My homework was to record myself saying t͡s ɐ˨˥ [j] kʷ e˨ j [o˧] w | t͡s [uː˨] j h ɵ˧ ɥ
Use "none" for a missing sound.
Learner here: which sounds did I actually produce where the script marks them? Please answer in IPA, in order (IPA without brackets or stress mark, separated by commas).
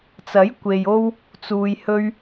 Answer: j, o˧, uː˨